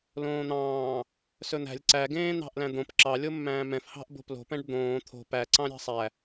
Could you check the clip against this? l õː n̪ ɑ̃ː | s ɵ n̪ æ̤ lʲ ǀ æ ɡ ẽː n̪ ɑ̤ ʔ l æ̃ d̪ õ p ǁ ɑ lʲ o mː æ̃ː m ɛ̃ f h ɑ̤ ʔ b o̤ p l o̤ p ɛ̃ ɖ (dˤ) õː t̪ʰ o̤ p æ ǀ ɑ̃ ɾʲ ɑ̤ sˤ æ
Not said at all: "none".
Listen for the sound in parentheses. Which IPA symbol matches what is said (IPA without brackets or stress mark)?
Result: d̪